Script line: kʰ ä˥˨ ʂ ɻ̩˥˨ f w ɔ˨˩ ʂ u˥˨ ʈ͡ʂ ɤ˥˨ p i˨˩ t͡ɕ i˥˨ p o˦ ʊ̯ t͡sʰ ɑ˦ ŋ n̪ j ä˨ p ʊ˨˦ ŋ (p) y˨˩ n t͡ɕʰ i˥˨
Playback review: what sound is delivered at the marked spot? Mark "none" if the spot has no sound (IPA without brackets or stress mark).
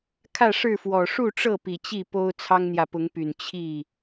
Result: p